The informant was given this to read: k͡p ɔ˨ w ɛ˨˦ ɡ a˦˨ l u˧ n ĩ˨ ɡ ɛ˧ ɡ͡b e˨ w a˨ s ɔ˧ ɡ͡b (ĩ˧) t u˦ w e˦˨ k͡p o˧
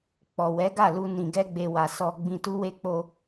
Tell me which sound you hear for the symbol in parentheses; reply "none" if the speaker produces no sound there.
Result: ĩ˧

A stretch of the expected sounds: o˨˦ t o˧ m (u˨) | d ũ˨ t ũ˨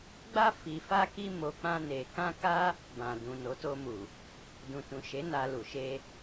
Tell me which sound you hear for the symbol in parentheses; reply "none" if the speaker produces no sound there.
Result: u˨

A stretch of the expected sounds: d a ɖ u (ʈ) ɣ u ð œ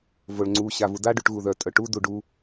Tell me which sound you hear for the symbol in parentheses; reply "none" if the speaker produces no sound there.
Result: ʈ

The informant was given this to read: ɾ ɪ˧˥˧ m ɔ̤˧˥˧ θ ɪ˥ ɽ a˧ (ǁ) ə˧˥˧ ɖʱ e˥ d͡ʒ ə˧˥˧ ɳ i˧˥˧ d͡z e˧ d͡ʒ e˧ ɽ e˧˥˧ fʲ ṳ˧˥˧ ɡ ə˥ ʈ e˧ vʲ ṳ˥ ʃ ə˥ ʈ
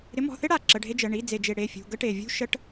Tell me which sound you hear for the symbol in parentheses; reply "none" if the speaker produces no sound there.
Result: ǁ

